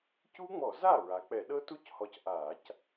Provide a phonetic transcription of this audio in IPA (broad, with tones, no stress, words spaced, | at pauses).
cu˦˥ŋ͡mɔ˧˩˧za˥˩ ɹa˩˧k͡pɛ˧˩˧ ɗɤ˦˥tu˦˥c hɔ˧cʔa˧˩˧c